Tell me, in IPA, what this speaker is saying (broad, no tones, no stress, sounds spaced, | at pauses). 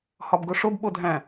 h ɒ b ɡ o ʂ o b ɓ o dʱ æ̃